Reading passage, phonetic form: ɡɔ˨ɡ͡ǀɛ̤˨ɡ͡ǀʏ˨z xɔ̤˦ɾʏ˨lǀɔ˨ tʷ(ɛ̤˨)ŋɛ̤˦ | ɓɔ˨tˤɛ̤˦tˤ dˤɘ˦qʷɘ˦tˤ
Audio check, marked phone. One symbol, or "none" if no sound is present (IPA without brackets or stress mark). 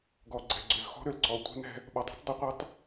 ɛ̤˦